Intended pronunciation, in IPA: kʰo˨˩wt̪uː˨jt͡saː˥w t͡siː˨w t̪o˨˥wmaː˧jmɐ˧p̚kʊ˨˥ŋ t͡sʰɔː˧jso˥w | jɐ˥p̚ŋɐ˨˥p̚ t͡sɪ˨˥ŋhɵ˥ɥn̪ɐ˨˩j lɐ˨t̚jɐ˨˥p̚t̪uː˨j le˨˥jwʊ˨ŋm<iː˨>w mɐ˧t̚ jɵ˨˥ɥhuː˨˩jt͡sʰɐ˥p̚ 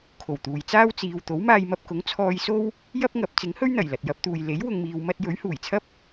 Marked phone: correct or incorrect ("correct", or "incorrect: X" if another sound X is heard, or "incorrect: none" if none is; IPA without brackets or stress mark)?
correct